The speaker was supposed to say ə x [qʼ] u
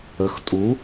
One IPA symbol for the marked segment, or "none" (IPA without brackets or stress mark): tʼ